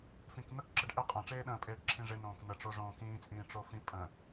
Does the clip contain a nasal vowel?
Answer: yes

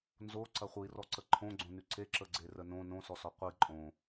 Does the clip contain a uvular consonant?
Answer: yes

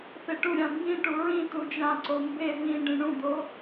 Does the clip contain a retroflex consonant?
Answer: yes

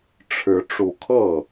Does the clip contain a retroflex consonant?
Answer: yes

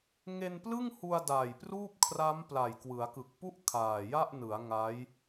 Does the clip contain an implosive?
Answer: no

